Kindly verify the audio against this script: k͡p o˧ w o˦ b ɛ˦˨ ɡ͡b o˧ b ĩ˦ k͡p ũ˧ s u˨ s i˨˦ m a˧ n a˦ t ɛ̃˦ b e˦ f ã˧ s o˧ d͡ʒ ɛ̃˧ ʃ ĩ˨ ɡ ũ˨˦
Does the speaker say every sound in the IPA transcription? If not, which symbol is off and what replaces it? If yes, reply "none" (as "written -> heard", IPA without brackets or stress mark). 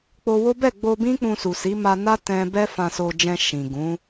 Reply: e˦ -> ɛ˦